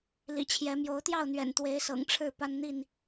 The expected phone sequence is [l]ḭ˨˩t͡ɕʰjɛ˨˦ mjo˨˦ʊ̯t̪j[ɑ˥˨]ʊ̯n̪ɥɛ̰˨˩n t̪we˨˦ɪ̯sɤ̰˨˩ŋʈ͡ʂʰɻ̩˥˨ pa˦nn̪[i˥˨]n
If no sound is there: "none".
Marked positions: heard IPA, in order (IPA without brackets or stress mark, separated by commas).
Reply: l, ɑ˥˨, i˥˨